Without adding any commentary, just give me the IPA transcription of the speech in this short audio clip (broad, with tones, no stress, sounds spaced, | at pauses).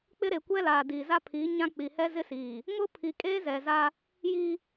k͡p ɪ˦ ɾ e˨ kʷ ɛ˦ l aː˨ d i˨ z a˦ pʰ i˨˦ ɲ ã˦ k͡p i˨ h ɛ˦ z ɪ˦ s iː˨ | ŋ ʊ˦ pʰ i˨ kʼ eː˦ z ɛ˨ z a˦ | j i˦